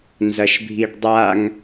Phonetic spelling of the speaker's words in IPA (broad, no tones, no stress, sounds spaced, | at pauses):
n z ɐ ʃ bʱ i ɖ dˤ a ŋ